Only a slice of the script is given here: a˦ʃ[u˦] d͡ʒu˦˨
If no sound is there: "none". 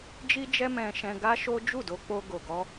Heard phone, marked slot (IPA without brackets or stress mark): o˦